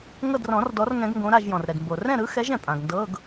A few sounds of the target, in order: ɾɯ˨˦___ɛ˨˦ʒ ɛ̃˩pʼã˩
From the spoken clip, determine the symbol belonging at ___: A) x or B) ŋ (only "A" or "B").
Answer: A